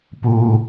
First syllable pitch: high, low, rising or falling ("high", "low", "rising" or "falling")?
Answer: high